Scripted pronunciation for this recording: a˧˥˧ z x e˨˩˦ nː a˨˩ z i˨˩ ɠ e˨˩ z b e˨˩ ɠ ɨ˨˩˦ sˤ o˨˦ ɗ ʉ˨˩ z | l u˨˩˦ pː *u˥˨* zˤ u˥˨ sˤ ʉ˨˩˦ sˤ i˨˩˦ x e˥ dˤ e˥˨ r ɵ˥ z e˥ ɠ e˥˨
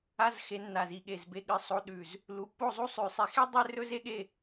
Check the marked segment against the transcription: incorrect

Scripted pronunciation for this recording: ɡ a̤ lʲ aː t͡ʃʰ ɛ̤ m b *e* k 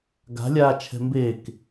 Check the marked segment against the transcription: correct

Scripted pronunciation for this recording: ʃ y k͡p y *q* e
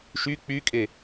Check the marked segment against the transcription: incorrect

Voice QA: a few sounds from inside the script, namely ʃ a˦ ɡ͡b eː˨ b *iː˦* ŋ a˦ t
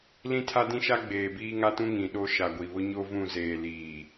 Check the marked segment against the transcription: correct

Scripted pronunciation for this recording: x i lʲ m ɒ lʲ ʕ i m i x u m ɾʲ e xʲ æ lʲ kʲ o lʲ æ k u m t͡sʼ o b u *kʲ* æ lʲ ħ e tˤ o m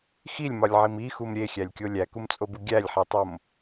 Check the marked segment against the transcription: incorrect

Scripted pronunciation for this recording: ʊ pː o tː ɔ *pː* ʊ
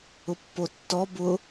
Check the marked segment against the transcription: incorrect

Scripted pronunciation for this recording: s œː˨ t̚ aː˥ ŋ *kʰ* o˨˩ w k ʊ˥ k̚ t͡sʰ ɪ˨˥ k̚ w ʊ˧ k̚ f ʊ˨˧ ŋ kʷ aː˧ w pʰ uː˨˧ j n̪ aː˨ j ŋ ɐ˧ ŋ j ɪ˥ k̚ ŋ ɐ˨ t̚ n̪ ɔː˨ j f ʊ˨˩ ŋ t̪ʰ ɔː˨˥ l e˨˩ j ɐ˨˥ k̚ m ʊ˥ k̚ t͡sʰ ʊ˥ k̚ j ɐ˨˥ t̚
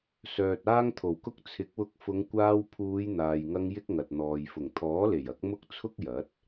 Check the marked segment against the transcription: incorrect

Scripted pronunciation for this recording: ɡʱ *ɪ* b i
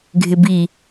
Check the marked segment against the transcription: correct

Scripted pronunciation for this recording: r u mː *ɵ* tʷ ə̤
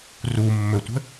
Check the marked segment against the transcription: correct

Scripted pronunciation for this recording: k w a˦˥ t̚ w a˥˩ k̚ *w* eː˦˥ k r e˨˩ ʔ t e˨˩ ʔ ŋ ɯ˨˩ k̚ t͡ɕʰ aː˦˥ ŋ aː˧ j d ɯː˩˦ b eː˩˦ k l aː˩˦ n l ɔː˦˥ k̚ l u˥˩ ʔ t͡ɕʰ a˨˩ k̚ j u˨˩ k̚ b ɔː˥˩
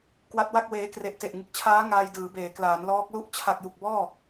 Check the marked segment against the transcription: correct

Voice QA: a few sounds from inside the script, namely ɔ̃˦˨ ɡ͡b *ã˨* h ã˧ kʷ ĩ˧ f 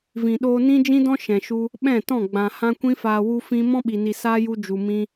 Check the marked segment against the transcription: correct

